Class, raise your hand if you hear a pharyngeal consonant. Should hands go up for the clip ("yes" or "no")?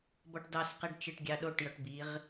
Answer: no